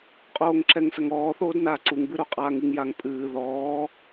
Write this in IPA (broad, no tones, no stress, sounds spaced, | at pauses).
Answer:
qʼ oː ŋ ǁ ɛ ŋ s ɐ ŋ ɔː θ oː d n aː ǀ u ŋ b ɨ ɾ o qʼ aː ŋ ɨ ŋ j a ŋ pʼ ɨː ð ɔː